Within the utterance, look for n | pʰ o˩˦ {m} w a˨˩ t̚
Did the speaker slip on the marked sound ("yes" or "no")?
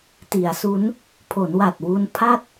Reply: yes